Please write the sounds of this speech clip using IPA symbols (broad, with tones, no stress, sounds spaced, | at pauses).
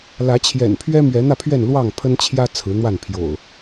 l ä˨˦ t͡ɕʰ j ɛ̰˨˩ n pʰ ɥ ɛ˦ m ɥ ɛ˨˦ n̪ ä˥˨ pʰ ɥ ɛ˥˨ n l w ɑ˥˨ ŋ pʰ ə˦ n t͡ɕʰ j ä˦ t͡sʰ ɹ̩˨˦ n̪ w a˥˨ n pʰ j o̰˨˩ ʊ̯